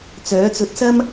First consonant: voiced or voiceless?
voiceless